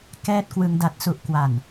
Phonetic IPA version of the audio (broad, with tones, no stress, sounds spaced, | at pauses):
k ɛː˦˥ t̚ k w ɯ˧ ŋ d a˨˩ t̚ s u˨˩ ʔ k w a˨˩ n